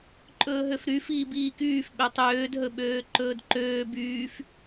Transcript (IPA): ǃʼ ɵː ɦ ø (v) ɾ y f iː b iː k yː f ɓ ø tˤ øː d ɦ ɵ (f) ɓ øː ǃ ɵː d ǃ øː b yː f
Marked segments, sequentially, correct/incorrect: incorrect: f, incorrect: none

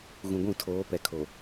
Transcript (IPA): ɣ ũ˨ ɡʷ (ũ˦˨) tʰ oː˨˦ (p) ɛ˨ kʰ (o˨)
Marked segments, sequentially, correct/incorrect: correct, correct, correct

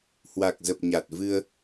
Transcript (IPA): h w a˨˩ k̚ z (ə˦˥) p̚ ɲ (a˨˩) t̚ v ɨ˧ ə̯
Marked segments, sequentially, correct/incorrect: incorrect: ə˨˩, correct

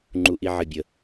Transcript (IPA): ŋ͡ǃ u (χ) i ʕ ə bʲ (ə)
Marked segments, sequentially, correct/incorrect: incorrect: ʔ, correct

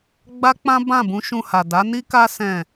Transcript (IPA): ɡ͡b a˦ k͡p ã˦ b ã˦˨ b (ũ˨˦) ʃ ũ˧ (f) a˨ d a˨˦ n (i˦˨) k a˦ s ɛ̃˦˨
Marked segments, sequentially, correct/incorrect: correct, incorrect: h, incorrect: i˦

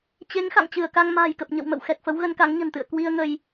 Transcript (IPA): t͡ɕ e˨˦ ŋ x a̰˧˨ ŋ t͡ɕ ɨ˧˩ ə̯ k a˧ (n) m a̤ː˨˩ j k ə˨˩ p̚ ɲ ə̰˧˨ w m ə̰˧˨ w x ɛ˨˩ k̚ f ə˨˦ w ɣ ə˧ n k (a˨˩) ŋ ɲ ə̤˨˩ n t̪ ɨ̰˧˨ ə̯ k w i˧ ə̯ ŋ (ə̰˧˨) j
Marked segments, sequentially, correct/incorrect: incorrect: ŋ, incorrect: a˨˦, incorrect: ə˧

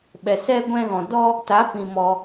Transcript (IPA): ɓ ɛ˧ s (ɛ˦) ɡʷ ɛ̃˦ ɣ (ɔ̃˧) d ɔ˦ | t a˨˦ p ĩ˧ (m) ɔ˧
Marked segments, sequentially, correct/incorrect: correct, correct, correct

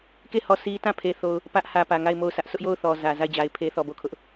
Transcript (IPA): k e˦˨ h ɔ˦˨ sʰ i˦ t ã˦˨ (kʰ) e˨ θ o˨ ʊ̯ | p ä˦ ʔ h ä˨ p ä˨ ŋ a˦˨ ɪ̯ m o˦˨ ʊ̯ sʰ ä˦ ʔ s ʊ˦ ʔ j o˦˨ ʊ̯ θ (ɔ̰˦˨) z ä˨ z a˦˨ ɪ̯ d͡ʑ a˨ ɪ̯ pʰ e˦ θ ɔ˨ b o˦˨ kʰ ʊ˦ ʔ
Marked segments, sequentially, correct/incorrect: incorrect: pʰ, incorrect: ɔ˨

